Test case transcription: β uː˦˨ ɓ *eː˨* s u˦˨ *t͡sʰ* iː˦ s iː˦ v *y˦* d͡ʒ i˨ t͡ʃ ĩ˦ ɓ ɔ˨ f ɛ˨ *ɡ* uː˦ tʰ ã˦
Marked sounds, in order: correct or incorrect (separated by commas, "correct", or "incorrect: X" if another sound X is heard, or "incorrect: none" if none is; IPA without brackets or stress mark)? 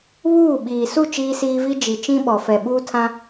incorrect: iː˨, incorrect: t͡ʃ, incorrect: i˦, incorrect: ɓ